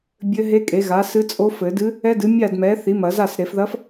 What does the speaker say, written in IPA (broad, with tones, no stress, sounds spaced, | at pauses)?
bʲ ɘ˧˥ ɦ e˧˥ kʼ e˩˥ ɣ a˩˥ s ɨ˧˥ t͡sʼ o˧˥ f ɘ˨˩˦ d ɨ˧˥ | ɛ˧˥ d ɨ˩˥ mʲ a˥˩ d m ɛ˩˥ θ i˩˥ m ɐ˨˩˦ z a˥˩ s ɾ e˨˩˦ f ð ɐ˧˥ f